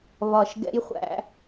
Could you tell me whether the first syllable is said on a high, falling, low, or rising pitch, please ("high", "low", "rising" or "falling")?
low